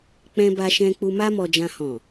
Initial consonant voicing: voiceless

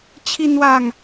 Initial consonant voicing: voiceless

